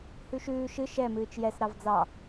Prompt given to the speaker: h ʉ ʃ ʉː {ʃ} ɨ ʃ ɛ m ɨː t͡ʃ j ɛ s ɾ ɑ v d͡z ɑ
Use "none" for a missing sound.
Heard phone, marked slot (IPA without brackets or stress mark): ʃ